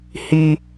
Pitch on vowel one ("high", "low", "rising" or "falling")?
high